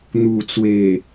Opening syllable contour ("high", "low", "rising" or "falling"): low